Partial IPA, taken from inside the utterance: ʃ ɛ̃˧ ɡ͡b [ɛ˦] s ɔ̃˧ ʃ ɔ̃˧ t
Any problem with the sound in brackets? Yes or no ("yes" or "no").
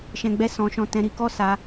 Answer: no